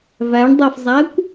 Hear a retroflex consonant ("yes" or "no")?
yes